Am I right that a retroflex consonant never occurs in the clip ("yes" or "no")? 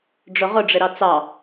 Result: no